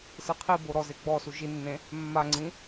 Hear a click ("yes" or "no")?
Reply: yes